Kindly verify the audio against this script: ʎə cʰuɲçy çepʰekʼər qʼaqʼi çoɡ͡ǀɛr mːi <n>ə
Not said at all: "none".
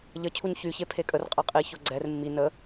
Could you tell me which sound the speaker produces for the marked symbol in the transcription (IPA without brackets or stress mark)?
n